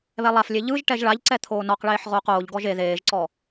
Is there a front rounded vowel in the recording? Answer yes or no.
no